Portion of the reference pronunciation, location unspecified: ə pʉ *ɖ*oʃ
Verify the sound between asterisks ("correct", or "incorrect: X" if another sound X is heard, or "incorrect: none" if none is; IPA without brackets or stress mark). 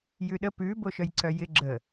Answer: incorrect: b